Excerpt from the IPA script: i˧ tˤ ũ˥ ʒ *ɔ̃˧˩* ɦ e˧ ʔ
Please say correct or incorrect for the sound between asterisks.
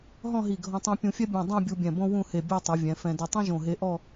incorrect